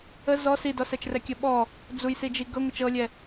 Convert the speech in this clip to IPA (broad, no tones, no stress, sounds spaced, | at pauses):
ə z ɔ s i d ɔ s ɛ t͡ʃ r ɛ kʲ ə ɓ ɔ | d͡z u j s i d͡ʒ i ɡ ɤ ŋʷ ɤ t͡ʃ ɤ lʲ ɛ